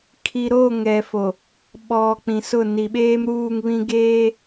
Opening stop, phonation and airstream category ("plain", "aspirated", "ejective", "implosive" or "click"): aspirated